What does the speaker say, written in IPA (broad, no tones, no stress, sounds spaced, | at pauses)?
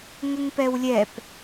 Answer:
ŋ ə ŋ p ɛ w lʲ ɛ p